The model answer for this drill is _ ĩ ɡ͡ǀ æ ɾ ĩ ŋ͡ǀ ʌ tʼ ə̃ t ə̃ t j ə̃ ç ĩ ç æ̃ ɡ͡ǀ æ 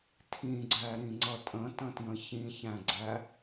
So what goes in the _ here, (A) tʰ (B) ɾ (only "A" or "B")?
A